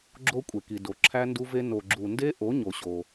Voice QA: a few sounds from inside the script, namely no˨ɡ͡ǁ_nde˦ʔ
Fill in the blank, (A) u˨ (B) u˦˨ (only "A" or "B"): A